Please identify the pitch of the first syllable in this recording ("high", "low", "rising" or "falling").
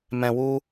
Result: low